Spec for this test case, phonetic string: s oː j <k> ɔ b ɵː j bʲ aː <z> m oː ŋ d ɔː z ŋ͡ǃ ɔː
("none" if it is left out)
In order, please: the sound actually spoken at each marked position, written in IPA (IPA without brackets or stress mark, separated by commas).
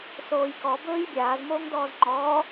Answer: k, z